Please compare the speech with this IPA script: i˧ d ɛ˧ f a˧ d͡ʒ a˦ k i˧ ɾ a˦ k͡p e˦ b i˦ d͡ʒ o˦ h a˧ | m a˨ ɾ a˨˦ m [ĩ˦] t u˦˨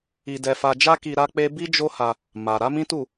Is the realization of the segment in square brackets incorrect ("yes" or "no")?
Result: no